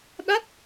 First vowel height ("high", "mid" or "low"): low